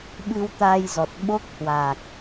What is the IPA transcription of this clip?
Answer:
ɓ ɨ˧ w t̪ a˧ j z ɔ˨˩ t̚ ɓ o˦˥ k̚ h w a˨˩ k̚

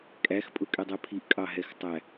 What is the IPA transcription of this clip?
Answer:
kʼ æ x pʼ ʊ kʼ ɛ dˤ ɛ pʰ i ʔ kʼ ɑ ɦ ɛ x tˤ æ

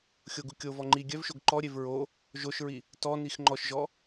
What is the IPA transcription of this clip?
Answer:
xʲ o ɡ u kʲ o v ɔ ŋ͡ǃ i ɡʲ œ v ʃ o ɡ ǃ ɔ ɾʲ e v ɹ o | ʒ o ʃ ɹ i | t ɔ n i x ŋ͡ǃ ɔ ʃ ʒ ɔ

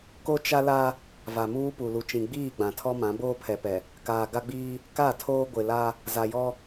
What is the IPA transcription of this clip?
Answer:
k o˦ t͡ʃ a˦ l a˦ | v a˨ m uː˦ p u˨ l u˨ t͡ʃ ĩ˨ ɡ͡b iː˦˨ ɡ͡b ã˨ tʰ ɔ˦ m ã˨˦ b oː˦ pʰ ɛ˨ p ɛ˨ | k aː˨ ɡ a˦ ɡ͡b iː˦ | k a˦˨ tʰ oː˦ ɡʷ ɪ˨ l a˦ | z a˨ j ɔ˦

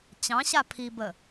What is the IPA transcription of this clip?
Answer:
t͡ɕ ɑ̃ ɕ a pʰ i b ə

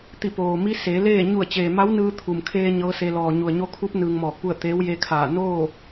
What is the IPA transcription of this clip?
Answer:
t̪ i˧˩ p oː˩ m i˧˥ s eː˩˧ l eː˥˨ ɲ u˧˩ ə̯ t͡ɕ eː˩ m a˧˥ w n ɯː˧ t̪ʰ u˩ m kʰ eː˧ ɲ ɤː˧˥ s e˧ l ɔː˩ ɲ u˩ ə̯ ɲ o˧ kʰ u˧˥ p̚ n ɯː˧ ŋ m ɔː˧˩ k̚ p u˥˨ ə̯ t̪ eː˧˥ w j e˧ kʰ aː˧˩ n oː˥˨

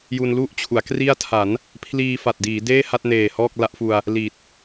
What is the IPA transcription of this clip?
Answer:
j u˧ n l u˥˩ ʔ t͡ɕʰ u˩˦ a̯ k r i˥˩ a̯ tʰ a˩˦ n | pʰ l iː˧ f a˨˩ t̚ d iː˩˦ d eː˥˩ h a˥˩ t̚ n eː˨˩ h ɔː˥˩ k̚ l a˦˥ ʔ f u˧ a̯ | l iː˨˩ t̚

